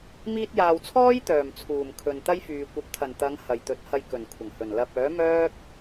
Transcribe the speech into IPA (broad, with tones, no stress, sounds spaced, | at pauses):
m iː˧ t̚ j aː˨ w t͡sʰ ɔː˥ j t̪ œː˨˩ m t͡sʰ uː˨˩ m kʰ ɵ˨ n t̪ ɐ˥ j f yː˨ kʷ ɐ˨˥ p̚ t̪ʰ ɐ˨˩ n t̪ ɐ˨˧ ŋ h ɐ˨˩ j t̪ ɵ˨˥ t̚ h ɐ˧ j k ɵ˨˩ n kʷʰ ɐ˨˩ ŋ h ɵ˨˩ n l ɐ˨ p̚ œː˨˥ m œː˥ k̚